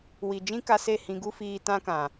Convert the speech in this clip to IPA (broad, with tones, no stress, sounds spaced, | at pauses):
w i˨ d͡ʒ ĩ˦ k a˧ s e˦˨ h ĩ˧ ɡ u˦ f iː˧ t ã˦ k ã˨